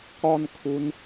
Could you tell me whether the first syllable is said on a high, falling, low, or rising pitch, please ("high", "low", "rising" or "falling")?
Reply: high